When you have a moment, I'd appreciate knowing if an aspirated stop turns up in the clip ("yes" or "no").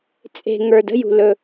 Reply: no